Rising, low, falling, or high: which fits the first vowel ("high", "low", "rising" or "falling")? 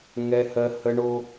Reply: high